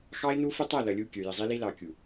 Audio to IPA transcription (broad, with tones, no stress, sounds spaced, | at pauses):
x ɑ˦ ɪ̯ n u˦ f ə˦ tˤ æ˦˨ l ʌ˨ lʲ u˦˨ kʲ ə˞˨ j ɪ˨ zˤ i˦ l i˦ l ɑ˨ kʲ u˨